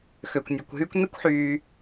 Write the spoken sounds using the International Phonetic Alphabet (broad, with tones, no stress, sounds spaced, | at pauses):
x ø˩ kʷ nʲ ɛ˩ kʷ ɦ yː˦ kʷ n ɛ˦ kʷ ħ yː˨